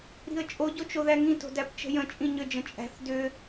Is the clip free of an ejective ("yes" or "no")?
no